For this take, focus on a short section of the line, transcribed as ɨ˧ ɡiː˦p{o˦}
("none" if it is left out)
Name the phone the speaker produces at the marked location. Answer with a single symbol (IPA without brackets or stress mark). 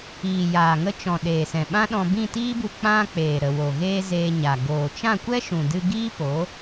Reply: o˨˦